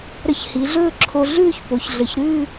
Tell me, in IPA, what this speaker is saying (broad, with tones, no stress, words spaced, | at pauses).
ɾə˧çhi˩˧ɮɵː˥˧ǁʰo˧ ɮʉː˥˧çpo˩˧çɮə˩˧ç ɾʉ˥˧